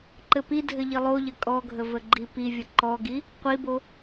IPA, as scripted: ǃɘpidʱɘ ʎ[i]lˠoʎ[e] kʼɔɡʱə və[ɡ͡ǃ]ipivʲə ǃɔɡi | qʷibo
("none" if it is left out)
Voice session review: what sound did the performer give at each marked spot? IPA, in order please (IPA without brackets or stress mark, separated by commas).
i, ɘ, ɡ͡ǃ